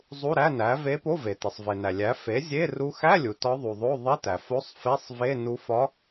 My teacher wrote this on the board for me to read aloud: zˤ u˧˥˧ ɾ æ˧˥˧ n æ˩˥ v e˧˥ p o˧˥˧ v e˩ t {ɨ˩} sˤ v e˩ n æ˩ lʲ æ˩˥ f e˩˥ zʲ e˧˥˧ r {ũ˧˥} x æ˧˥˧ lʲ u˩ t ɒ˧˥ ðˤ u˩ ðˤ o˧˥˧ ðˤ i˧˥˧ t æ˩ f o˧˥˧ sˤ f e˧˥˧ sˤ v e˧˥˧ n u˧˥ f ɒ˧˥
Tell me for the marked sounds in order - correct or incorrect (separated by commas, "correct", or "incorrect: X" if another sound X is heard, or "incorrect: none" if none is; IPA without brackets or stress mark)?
incorrect: e˩, incorrect: u˧˥